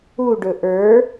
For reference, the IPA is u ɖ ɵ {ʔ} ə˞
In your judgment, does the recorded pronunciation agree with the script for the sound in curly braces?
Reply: yes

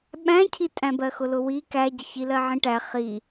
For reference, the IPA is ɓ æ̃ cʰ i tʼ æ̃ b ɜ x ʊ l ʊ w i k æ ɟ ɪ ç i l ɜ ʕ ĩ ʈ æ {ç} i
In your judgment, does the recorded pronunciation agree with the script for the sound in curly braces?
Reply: no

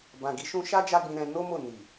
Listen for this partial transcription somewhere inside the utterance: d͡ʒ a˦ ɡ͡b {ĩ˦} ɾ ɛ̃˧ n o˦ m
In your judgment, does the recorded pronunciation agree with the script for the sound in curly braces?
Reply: no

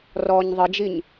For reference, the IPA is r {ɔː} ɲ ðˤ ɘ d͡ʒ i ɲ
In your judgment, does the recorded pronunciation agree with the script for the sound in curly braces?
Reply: yes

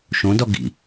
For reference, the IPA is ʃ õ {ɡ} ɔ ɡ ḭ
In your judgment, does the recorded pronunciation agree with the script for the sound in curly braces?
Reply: no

